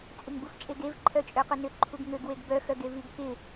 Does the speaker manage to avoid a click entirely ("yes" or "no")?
no